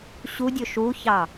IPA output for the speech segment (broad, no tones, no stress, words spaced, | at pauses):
ɕudʲɵ ʃuçɑ